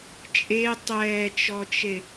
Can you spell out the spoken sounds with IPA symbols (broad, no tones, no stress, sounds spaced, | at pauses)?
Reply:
t͡ʃʼ e tˤ ɛː t͡ʃ ɔ t͡ʃ e